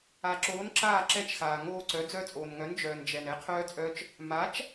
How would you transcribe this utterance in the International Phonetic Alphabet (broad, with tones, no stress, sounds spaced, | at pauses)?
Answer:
a˨ ǁ oː˨˥ n ǁ aː˦˨ ǁ ɛ˦˥ t͡ʃ x aː˨ ŋ oː˦˨ ǀ œ˨˥ d͡z œ˦˨ t͡sʼ oː˨ n ŋ œ˨˥ n d͡ʒ œː˨ n d͡ʒ ɛ˨ n ɛ˨˥ qʰ œː˦˥ t͡sʼ œ˦˥ t͡ʃ | m a˨˥ t͡ʃ